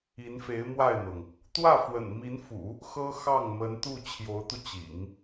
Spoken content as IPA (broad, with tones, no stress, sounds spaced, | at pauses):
i˧˥ n f e˧˥ ɪ̯ m w a˥˩ ɪ̯ n̪ ɤ˩ ŋ | t̪ w ä˥˩ f w ə̰˨˩ n m i˧˥ n f ṵ˨˩˦ | x ɤ˥ x ɑ˥˩ ŋ m ə˧˥ n t̪ u˥˩ t͡ɕʰ j o˧˥ ʊ̯ t̪ u˧ t͡ɕ ḭ˨˩˦ ŋ